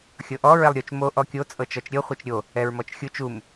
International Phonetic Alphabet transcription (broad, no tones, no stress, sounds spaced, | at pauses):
xʲ ɤ ʔ ɔ ɹ ɛ lˠ ɾʲ o t͡ʃ m o ʔ ɔ kʲ o t͡sʼ ɤ t͡ʃ ɔ t͡ʃ ɾʲ ɤ χʷ ɤ t͡ʃ ɾʲ o | ɛ ɹ m ɔ t͡ʃ xʲ u t͡ʃ u m